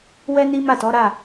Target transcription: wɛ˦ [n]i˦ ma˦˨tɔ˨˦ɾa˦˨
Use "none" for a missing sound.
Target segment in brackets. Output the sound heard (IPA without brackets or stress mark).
n